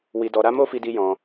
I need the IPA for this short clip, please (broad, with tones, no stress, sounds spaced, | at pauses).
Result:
w i˧ d ɔ˧ ɾ a˦ m o˦ f i˧ d i˧ j ɔ̃˧